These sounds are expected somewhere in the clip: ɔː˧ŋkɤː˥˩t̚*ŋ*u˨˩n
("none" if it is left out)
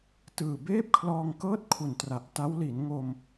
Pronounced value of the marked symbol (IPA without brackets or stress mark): kʰ